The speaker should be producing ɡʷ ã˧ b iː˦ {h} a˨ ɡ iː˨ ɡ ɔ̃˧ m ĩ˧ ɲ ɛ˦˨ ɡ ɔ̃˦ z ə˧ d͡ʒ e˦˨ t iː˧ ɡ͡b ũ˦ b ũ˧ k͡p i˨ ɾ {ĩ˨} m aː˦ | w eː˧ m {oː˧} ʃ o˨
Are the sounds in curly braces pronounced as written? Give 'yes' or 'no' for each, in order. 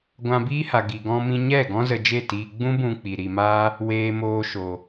yes, no, yes

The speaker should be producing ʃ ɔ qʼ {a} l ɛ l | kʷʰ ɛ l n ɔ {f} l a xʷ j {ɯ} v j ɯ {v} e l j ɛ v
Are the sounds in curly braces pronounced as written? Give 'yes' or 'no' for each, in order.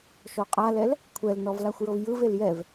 yes, no, no, yes

